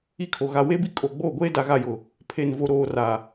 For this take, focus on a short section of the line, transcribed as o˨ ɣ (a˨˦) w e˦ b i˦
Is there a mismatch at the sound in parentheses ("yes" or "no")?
yes